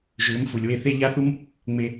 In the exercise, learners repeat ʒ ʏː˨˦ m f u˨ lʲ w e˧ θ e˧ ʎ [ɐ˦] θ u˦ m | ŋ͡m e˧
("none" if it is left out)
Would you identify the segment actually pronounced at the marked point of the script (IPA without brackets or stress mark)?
a˦